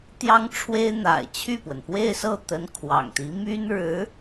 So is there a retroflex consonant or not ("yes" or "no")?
yes